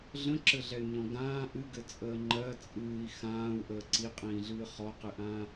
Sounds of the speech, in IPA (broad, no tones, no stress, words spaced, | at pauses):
ɮə̃ǁɘɮɛy̯ɲɔ̃ ɡãː ʔɨɡɘ t͡sʼəːŋ͡ǃɜ t͡sʼɨːi̯ xãːu̯ ʔəːǀiqʼĩːɮɨː χɔqɨʔãː